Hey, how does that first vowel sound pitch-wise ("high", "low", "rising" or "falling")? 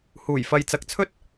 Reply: low